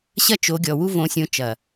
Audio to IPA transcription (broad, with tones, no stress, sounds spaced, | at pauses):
ɕ ɐ˦ t͡ʃ o˨˦ ɡʲ ɔ˨ w u˦ v õ˨˦ sʲ õ˨˦ t͡ʃ ɐ˨